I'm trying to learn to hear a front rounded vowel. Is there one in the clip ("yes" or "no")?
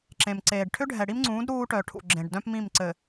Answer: yes